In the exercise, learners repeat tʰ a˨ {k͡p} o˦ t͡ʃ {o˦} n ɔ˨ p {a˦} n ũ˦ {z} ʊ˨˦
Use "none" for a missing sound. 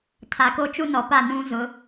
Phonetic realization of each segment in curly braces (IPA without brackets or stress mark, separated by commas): k, u˦, a˦˨, z